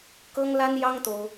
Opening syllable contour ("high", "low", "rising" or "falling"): high